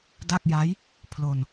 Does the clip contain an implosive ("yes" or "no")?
no